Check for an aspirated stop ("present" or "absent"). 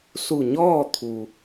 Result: present